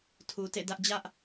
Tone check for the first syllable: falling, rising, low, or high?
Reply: low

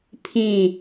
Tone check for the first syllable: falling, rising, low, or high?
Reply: falling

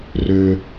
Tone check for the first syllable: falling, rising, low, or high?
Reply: low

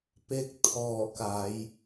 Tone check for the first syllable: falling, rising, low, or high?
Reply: rising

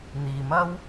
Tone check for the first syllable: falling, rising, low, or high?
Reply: low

